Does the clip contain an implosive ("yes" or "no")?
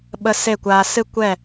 yes